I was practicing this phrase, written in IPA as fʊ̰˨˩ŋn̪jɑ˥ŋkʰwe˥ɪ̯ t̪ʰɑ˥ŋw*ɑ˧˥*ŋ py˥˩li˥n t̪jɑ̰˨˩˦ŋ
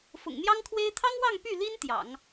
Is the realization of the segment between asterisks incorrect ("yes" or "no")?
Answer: yes